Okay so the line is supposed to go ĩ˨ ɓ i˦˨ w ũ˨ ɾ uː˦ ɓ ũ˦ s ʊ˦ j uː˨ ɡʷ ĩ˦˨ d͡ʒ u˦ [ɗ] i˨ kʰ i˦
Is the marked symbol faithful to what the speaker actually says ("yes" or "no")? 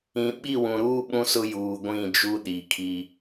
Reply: yes